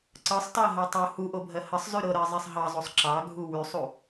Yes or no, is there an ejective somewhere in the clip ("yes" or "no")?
no